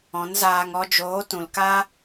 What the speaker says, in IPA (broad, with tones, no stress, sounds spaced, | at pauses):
ɔ̃˨˦ n z aː˧ ŋ ɔ˧ d͡ʒ oː˨˦ t ũ˨ l k a˦